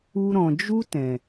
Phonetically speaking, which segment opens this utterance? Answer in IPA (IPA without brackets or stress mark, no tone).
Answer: u